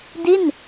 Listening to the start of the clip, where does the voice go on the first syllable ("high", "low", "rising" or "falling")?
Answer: falling